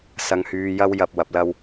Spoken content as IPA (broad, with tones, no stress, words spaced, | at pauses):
sɐ˧ŋhyː˧jɐ˥w jɐ˧p̚ wɐ˨˥p̚lɐ˥w